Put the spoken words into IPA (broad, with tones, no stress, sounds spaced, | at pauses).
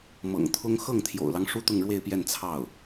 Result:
m ɤ̰˨˩ ŋ t̪ʰ ʊ˥ ŋ x ɤ˥˩ ŋ t̪ʰ j o̰˨˩ ʊ̯ l ɑ˦ ŋ ʂ u˥ t̪ ʊ˥˧ ŋ ɻ w e˥˧ ɪ̯ p j ɛ˥˧ n t͡sʰ ɑ˥˩ ʊ̯